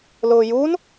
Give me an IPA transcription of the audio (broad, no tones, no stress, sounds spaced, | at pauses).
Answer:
l ʊː j u n